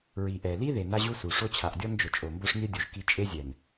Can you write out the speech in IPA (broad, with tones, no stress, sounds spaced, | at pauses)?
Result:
ɹ i˨ ʔ ɛ˨ l i˦ ð e˨ n a˦ ʑ u˦ s u˨ ʂ o˦ t͡ɕʰ a˨ ʔ dʲ ɔ˦ n d͡ʒ ʊ˨ t͡ʃʼ o˨ m b o˦ ʂ nʲ ɛ˦ dʲ u˨ ʒ k i˦ t͡ʃʼ e˦ zʲ ɛ˨ n